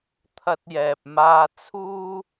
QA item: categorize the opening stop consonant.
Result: aspirated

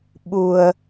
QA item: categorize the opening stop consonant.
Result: implosive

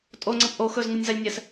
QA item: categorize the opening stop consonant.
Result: ejective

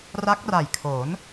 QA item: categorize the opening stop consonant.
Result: plain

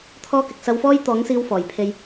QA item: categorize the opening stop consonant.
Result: aspirated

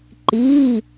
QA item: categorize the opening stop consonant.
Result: click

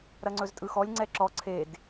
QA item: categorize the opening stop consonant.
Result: click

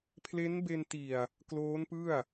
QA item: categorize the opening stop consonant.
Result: aspirated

